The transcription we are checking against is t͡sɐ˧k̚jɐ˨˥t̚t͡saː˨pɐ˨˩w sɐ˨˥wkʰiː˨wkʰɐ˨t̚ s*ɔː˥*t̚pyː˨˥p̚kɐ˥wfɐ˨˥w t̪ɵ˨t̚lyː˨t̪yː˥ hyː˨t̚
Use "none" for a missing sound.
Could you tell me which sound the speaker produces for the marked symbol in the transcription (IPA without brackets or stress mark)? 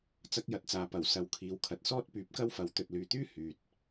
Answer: ɔː˥